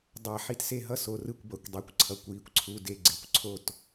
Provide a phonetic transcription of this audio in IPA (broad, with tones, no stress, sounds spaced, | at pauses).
dˤ a˧˩ ħ i˧˩ t s e˧˩ ɦ ʌ˧˩ s o˩˧˩ r ɯ˧˩ kʷ b ʌ˩˧˩ kʷ dˤ e˩˧˩ kʷ ǀʰ ʌ˩˧˩ kʷ j i˩˧˩ kʷ ǀʰ u˩˧˩ d e˩˧˩ ɡ͡ǀ e˩˧˩ kʷ ǀʰ o˧˩ t